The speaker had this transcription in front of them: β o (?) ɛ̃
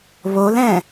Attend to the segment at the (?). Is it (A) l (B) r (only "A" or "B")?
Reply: A